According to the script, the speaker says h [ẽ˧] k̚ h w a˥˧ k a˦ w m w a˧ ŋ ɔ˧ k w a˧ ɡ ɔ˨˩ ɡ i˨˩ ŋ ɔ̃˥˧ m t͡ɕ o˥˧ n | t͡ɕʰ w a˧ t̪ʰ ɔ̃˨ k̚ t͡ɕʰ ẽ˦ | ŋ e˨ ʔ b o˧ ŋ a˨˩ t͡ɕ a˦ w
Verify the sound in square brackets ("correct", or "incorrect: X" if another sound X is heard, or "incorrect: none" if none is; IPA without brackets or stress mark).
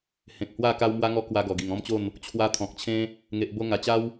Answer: incorrect: ẽ˨